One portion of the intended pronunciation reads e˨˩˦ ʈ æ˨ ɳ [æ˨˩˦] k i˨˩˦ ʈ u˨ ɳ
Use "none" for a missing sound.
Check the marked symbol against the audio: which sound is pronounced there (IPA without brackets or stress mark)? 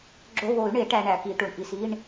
æ˨˩˦